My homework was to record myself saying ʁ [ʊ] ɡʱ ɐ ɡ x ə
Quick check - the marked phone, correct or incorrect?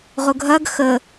correct